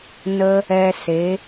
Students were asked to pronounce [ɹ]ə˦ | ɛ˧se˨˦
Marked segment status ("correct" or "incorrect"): incorrect